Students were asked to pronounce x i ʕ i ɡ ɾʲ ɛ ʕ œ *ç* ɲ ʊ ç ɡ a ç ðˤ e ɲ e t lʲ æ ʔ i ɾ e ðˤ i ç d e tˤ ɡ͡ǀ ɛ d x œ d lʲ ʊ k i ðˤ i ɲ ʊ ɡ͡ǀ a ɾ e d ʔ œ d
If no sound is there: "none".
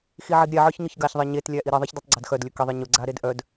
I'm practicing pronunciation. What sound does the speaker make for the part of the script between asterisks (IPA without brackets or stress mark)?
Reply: ç